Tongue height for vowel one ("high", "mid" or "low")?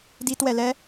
high